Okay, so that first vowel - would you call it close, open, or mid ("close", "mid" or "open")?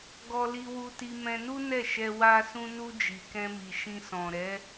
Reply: mid